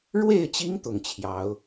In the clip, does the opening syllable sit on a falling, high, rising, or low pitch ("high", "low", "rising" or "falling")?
falling